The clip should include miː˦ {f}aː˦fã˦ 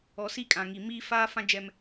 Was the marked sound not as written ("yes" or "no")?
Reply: no